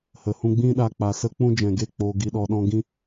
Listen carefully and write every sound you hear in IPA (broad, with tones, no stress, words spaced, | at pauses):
hə˨hũ˧ɡ͡bĩ˦ ɗa˧k͡pa˨sə˦ k͡pũ˦d͡ʒɛ̃˨ɡe˦˨ k͡poː˨ɡi˨ɗɔ˨ ɗɔ̃˧ɡĩ˦